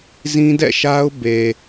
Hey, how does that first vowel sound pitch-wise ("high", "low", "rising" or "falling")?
high